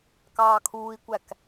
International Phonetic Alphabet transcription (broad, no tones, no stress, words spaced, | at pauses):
kɑːkʰuːi̯kʷæk